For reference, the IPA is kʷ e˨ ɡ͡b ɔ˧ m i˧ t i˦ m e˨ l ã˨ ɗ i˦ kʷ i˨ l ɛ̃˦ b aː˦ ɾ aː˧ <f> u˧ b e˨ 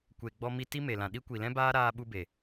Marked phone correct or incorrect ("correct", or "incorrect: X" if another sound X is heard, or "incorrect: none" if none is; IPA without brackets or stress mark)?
incorrect: ɓ